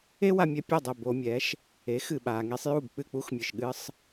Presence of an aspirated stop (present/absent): absent